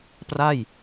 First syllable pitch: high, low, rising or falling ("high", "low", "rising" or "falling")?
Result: falling